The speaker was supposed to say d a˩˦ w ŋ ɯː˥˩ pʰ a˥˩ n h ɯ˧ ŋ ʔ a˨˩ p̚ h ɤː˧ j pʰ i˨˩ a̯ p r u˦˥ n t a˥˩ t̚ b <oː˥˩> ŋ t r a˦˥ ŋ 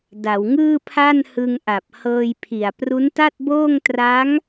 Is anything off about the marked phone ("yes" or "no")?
no